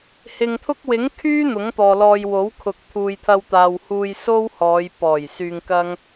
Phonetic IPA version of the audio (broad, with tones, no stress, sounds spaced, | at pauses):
h ɪ˨ ŋ t̪ʰ ʊ˥ k̚ w ɪ˨˥ ŋ kʰ yː˥ n̪ ʊ˨˥ ŋ t̪ ɔː˨ l ɔː˧ j w o˨˥ w kʰ ʊ˨ k̚ t̪ʰ uː˨ j t̪ʰ ɐ˧ w t̪ aː˨ w h uː˧ j s o˥ w h ɔː˨˧ j p ɔː˨˩ j s yː˧ ŋ k ɐ˥ ŋ